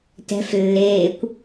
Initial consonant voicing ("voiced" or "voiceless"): voiceless